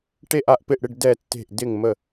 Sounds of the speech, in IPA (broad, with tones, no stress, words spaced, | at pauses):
ʈe˦˨ʔa˦˨ʔpɪ˦˨ʔɽɪ˦˨ɖ dɛ˦˨tːe̤˦˨ʔ dɪ˦˨ŋmə˦˨